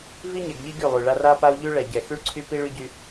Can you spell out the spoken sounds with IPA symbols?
v i˦ ɲ ɛ˨ ɡ ʎ i˦ ɡ y˦˨ lˠ y˨ ɭ a˦ r a˦ p a˦ u̯ ʎ y˦ ɭ ɛ˨ ɟ ɛ˨ x y˦ ɭ ǀʰ y˦ p i˦ ɭ y˦ ɟ y˦

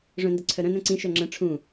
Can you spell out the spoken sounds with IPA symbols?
ʐ œ̃ n d ə ǀʰ œ ɾ œ̃ n œ̃ ǀ ĩ ʃ œ ŋ͡ǁ ə̃ ʈ͡ʂʰ ũ

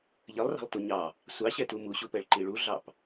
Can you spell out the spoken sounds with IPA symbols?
ʎ ə lˠ r ɑ̤ lˠ t u ɲ ɑ | sʷ ɑ ɕ ɛ t u m u ɕ u p ɛ ɭ ǃ i ɭ u ɮ ɑ p

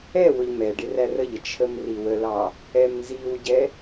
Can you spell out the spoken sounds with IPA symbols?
ɛ w ʊ ʎ m ɛ ɖ ɪ r æ r ə ʎ ə t͡ʃʰ ə m r i w ə l ɑ | ɛ m n z i w ɟ ɛ

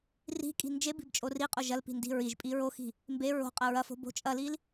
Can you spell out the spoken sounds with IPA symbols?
r i̤ kʼ i̤ n d͡ʒ e b i̤ b t͡ʃʼ o r i qʼ o ʒ ɐ l p i̤ n d i̤ ɹ i ʒ pʼ i ɹ o x i̤ | m b e ɹ o̤ qʼ ɐ ɹ ɐ f o̤ b o̤ t͡ʃʼ ɐ l i l

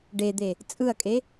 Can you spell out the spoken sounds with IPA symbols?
ɖ e d̪ e | t͡sʼ ɯ ɐ̯ kʼ e

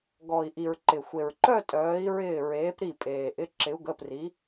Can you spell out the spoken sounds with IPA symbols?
ɡ ɔ˩ i̯ ʔ i˩ ɹ ǃ ɪ˩ xʷ e˩ ɹ ǃ œ˥˧ tʼ œː˩˧ i̯ ɹ ɪː˧˩ ɹ eː˩˧ p ɾ i˧˩ pʼ eː˩ ʔ ɪ˩˧˩ ǁ ɪ˩˧ u̯ ɡ ə˩˧˩ p r i˩˧

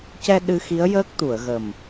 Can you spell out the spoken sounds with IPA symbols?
c ɛ˧ ɗ ɨ˧ x i˧˥ ə̯ j əː˦˥ k̚ t̪ u˨˩˨ ə̯ ɣ ə˨˩ m

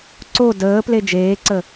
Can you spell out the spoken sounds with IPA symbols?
ǀ o d əː p l e d͡ʒ eː ǀ ə

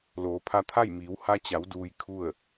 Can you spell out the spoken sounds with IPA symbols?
l oː˩˧ pʰ a˧ t̪ʰ a˥˨ j m iː˩˧ w h a˧ t͡ɕ a˩˧ w d uː˧ j kʰ u˥˨ ə̯

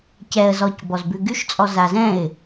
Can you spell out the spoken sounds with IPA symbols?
c ɛ ə̯ z ɔ c b ɔ z b ʉ ɡ y ʃ t͡sʼ ɔ z a z ɛ̃ ɪ̯

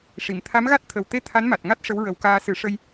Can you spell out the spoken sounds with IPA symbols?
ʂ i˨˩˨ m t̪ʰ a˧˥ m ɣ a˦˥ t̚ t̪ʰ ə˨˩ w t̪ e˧ t̪ʰ a˧˥ n m a˨˩ t̚ ŋ a˦˥ t̚ ʂ ə˧˥ w ɹ ə˨˩˦ w k aː˧ s ɨ˨˩˦ ʂ ə˧ j

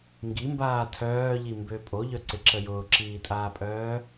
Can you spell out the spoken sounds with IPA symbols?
ŋ ɡ i m b aː tʰ œː ʎ i m b ø pʼ o ʎ œ ǀ ɪ ǁ ə j ʊː ǁ iː tʼ aː pʼ œː

